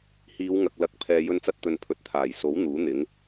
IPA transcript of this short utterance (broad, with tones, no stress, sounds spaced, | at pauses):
h iː˨˧ w ŋ ɐ˨ k̚ l ɐ˨˥ k̚ pʰ ɛː˨ j ɵ˧ n t͡s ɐ˧ t̚ t̪ ɵ˨ n pʰ ɵ˨ t̚ t̪ʰ aː˨˩ j s o˨˥ w n̪ uː˨˥ n̪ ɪ˨˥ ŋ